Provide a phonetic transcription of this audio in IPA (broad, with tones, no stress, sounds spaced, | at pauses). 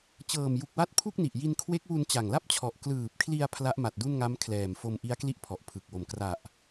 t͡ɕ ɤː˨˩ m j u˨˩ k̚ w a˦˥ t̚ pʰ u˥˩ k̚ n i˨˩ ʔ j i˧ n kʰ w e˦˥ k̚ w u˧ n t͡ɕ a˨˩ ŋ l a˥˩ p̚ t͡ɕʰ ɔ˨˩ ʔ k l ɯː˨˩ p̚ kʰ l i˧ a̯ pʰ l a˦˥ ʔ m a˨˩ t̚ d u˥˩ n ŋ a˦˥ m kʰ l ɛː˨˩ m f o˧ m ʔ i˦˥ a̯ k l i˥˩ ʔ pʰ ɔ˨˩ ʔ pʰ ɯ˨˩ k̚ w o˨˩ m k r a˨˩ ʔ